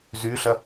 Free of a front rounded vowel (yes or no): no